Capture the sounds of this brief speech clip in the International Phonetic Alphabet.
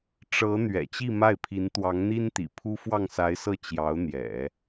ʈ͡ʂɤ˧˥ n̪ɥɛ̰˨˩t͡ɕi˥˧ma˥˩ɪ̯pʰi˧˥n t̪wɑ˧˥ŋn̪i˥nt̪ḭ˨˩pʰu˥ fwɑ˥˩ŋsa˧˥ɪ̯sɤ˥˩ t͡ɕjɑ˧˥ʊ̯n̪jɛ̰˨˩˦

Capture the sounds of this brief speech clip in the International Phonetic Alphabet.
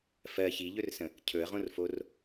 fɜ çiʎɵrsə̃ | cʰɵə̯ʁõrfor

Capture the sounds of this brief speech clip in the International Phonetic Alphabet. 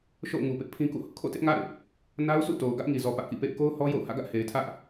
ʃo̰˦˨ʊ̯ŋu˨pɪ˦ʔ pʰĩ˦kṵ˦˨hʊ˦ʔ kʰo̰˦˨tɪ˦ʔŋa̰˦˨ɪ̯ | na˦ʊ̯sṵ˦˨to˨ʊ̯ ɡä˦ʔŋi˨zɔ˨ pä˦ʔkḭ˦˨pḛ˦˨ɪ̯ ko˦ʊ̯hɔ˦ jo̰˦˨ʊ̯ hä̰˦˨ɡä˦ʔ he˨ɪ̯tʰä˦ʔ

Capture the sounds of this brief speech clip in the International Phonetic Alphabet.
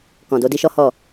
kɔ̃˨do˧ di˦ʃɔ˦hɔ˦˨

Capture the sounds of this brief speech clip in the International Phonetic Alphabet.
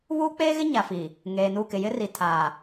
βuː˦k͡peː˦ɣɪ˦ ɲa˨fi˨ | ŋeː˨nu˦˨kɪ˨ jɪ˦ri˨ tʰaː˨

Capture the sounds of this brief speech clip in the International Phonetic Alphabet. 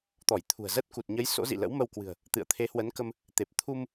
t̪ɔ˧˩jt̪ʰṳ˨˩ə̯zə˦˥t̚ ku˨˩t̚ɲə˨˦j so̰˧˥zḭ˧˨lə̰˧˥w mə˧wkwɨ̤˨˩ə̯ | t̪ɨ̰˧˨ə̯ t̪ʰe˨˦hwə˨˦nkə˧m | t̪e˨˩p̚t̪ʰu˧m

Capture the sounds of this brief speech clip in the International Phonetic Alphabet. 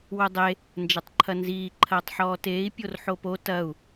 wodˤe | nd͡ʒɐtˤǃʰɐnziː ǃʰɐːtˤħɔːteːi̯ pʲorħopo tɐu̯

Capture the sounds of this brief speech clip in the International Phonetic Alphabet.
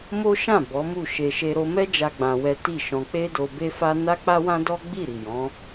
mo˦ʃã˦˨ bɔ˨˦mu˦˨ʃe˧ ʃe˧ɾo˧mɛ˦ d͡ʒa˦ɡ͡bã˧wɛ˦ ti˦˨ʃɔ̃˧ k͡pe˦do˧be˦fa˦ na˦k͡pa˦wã˦ dɔ˦ ɡ͡bi˦˨ɾi˨jɔ̃˨˦

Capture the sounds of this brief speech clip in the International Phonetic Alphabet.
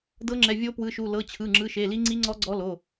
dɤ˧˥ŋ͡ǁɛ˩˧˩vʲo˧˥ pwɯ˩˧˩ʃu˩˧˩ lɤ˩˧˩t͡ɕʰɯ˩˧˩ŋ͡ǁɯ˩˧˩ ʃe˩˧˩li˧˥ŋ͡ǀi˧˥ŋ͡ǀɔ˧˥ ɡ͡ǀɔ˧˥ lo˩˧˩

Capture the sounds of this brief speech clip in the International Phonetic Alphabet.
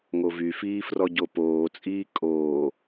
ŋovyfiː frɔɟopoːt͡sʼiː kʼoː

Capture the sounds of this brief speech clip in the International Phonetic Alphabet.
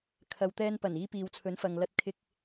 kʰɐ˨wt̪ɛː˧npɐ˨˩n iː˧piː˨wt͡sʰɵ˨˥nfɐ˨ŋ lɐ˧t̚ kʰɪ˧k̚

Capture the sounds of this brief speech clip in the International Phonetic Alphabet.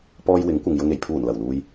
pɔː˧j wɪ˨˥ŋkʷɐ˨ŋjʊ˧ŋ e˨˩jpʰuː˨˩nlɐ˨˩wluː˨j

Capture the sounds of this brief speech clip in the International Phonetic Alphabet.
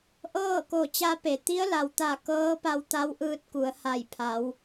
ʔɤː˥˨ko˧˩t͡ɕa˧˥pe˩ t̪i˧˥ə̯la˩wt̪a˧˩ kɤː˧˥pa˧w t̪a˧˥wʔɯː˧t̚ku˩˧ə̯ ha˧˩jpʰa˩˧w

